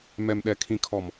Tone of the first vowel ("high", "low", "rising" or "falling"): low